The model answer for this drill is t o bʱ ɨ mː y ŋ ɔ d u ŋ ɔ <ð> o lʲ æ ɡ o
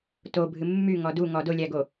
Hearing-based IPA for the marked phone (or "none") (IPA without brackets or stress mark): d